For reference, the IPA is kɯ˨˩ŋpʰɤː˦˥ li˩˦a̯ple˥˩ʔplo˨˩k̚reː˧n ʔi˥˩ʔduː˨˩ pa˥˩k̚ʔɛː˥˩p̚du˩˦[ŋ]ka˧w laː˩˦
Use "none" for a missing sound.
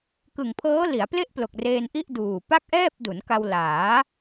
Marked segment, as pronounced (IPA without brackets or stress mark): n